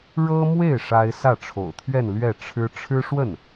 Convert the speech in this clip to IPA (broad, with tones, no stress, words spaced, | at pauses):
ɻɤ˥mwe˥˩ɪ̯ ʂa˥ɪ̯ sä˥˩ʈ͡ʂʰo̰˨˩ʊ̯t̪ʰɥɛ˥˧n lɥɛ˥˩ ʈ͡ʂʰɻ̩˥ ʈ͡ʂʰɻ̩˥ʂwə˥˩n